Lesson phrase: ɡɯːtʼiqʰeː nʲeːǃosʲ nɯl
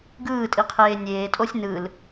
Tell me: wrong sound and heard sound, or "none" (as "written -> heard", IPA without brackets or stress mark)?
ǃ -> tʼ